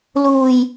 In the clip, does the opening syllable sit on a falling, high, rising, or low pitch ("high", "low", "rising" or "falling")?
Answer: low